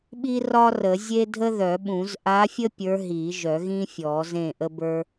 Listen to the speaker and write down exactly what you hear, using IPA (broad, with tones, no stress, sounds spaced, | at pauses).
ɓ i˥ r ɒ˥ r ə˨˩˦ zʲ e˥ dʱ ə˥ ð œ˨˩˦ ɓ ũ˨˩˦ z ʔ a˧˥ fʲ ə˥ pʲ ə˞˧˥ ɦ i˨˩˦ ʒ œ˨˩˦ ɣ ĩ˥ fʲ ɔ˨˩˦ z ẽ˥˩ ʔ ə˥ b ə˞˥